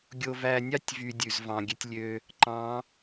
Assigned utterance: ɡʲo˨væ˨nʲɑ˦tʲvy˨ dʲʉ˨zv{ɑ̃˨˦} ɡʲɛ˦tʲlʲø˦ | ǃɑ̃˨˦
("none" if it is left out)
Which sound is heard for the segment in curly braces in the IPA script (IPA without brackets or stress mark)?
ɑ̃˨